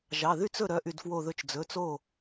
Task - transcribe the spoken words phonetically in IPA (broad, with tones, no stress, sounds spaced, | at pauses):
ʒ ɑ˩˧˩ ð y˥˨ t͡s ɵ˥˨ ɾ œ˩˧˩ ʔ y˧˩ d f w o˧˩ ð ɵ˧˩ t͡ʃ d͡z ɵ˩˧˩ t͡s o˥˨